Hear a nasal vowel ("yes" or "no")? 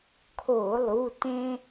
yes